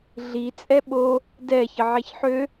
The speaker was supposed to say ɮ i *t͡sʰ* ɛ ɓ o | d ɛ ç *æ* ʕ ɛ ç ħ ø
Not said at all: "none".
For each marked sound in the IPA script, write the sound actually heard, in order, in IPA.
t͡sʼ, ə

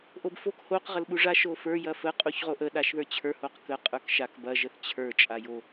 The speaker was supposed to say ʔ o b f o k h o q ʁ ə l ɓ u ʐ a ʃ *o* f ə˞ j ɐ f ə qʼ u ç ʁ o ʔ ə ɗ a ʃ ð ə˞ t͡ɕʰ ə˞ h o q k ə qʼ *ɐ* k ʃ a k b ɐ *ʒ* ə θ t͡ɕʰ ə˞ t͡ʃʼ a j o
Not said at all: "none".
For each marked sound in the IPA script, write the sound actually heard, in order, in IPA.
o, ə˞, ʒ

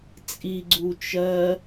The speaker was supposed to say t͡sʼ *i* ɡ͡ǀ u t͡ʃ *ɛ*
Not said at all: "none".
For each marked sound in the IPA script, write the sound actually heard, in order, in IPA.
i, ɜ

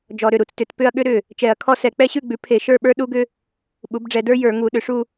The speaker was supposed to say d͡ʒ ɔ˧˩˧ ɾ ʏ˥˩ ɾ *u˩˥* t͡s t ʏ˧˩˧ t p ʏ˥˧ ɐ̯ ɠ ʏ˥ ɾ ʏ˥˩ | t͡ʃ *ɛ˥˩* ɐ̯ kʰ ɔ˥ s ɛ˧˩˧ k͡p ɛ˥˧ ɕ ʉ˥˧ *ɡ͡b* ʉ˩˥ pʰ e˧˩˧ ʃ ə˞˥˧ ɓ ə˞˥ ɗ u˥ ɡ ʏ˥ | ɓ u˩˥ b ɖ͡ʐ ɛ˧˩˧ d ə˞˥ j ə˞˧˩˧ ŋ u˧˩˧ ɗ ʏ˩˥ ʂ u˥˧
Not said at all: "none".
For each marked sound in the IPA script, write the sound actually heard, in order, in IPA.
u˩˥, ɛ˧˩˧, ɡ͡b

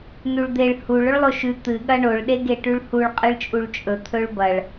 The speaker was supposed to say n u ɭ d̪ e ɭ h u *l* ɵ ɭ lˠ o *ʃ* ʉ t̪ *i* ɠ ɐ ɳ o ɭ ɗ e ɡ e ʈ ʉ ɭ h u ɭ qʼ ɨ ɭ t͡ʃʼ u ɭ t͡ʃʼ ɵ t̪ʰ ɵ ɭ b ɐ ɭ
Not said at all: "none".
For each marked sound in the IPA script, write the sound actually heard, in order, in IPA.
ɭ, ʃ, ɨ

